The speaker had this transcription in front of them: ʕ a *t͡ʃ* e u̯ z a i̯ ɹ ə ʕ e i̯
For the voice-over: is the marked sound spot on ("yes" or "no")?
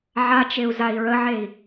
yes